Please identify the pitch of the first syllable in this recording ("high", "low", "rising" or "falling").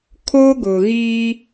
high